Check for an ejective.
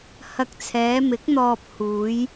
absent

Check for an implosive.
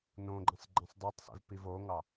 absent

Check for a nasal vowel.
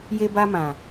present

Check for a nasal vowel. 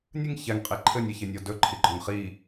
absent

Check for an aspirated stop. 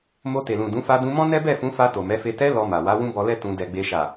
absent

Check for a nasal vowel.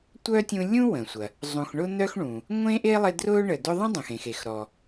present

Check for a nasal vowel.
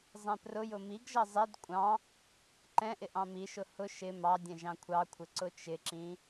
present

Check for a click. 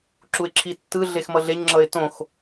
present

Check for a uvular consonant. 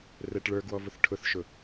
absent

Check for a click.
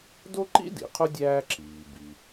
present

